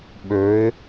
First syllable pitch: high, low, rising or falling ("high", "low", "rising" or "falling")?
rising